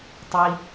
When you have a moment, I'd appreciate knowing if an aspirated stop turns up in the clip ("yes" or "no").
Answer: no